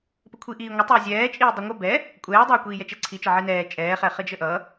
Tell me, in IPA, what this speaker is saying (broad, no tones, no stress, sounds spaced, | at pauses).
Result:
p ə kʷʰ i ʔ iː ŋʷ ə tˤ əː zʲ ɛː t͡ʃʼ iː dˤ i ŋʷ ə b ɛ | kʷʼ ɛː dˤ ɛː kʷ iː j ɛ t͡ʃ ɛ ǀʰ i t͡ʃ ə ʕ i n ɛː t͡ʃʼ ɛː χ ɛ χ ə d͡ʒ ə ʔ ʌ